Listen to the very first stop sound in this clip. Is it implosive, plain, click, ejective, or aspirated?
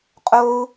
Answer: ejective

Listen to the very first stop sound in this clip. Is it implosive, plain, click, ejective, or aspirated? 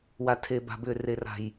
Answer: aspirated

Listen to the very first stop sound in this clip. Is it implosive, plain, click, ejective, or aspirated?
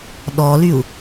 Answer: implosive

